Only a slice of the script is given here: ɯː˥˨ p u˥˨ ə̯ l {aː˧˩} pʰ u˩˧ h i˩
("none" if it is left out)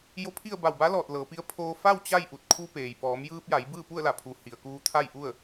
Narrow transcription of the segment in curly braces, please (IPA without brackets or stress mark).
a˧˩